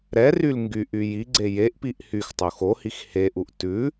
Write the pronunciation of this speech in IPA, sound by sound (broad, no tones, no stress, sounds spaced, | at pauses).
ɾ ɛ r y l ŋ ɡ y ʔ y j i ɡ͡ǀ e j e ʔ p i ʔ h y x tˤ o x o h i x h e ʔ u ʔ t ʉ